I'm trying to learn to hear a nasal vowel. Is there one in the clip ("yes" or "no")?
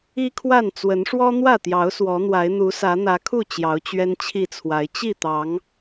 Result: no